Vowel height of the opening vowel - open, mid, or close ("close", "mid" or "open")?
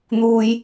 close